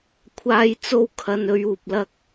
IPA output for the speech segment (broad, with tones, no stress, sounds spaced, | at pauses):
kʷʰ aː˧ j t͡s o˥ w kʰ ɐ˧ n ɵ˧ ɥ uː˨ p̚ l ɐ˧ k̚